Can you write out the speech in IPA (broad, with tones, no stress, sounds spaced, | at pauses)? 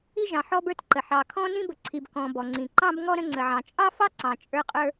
i˧ ʒ ɑ̃˩ ħ ɔ˧ b ə˞˧ t ǃ ə˩ ħ ɑ˩ kʰ ɔ̃˧ n ĩ˧ b ə˩ ǀʰ i˩ b k ɔ̃˩ b ɔ˩ ŋ͡ǀ ĩ˩ ǃ ɑ̃˧ b ŋ ɔ˧ ɾ ə̃˧ ŋ͡ǀ ə˩ ʕ ɑ̃˩ t͡ʃʼ ɑ˧ f ɑ˧ ǀ ɑ̃˩ t͡ʃʼ ə˞˧ qʼ ə˞˧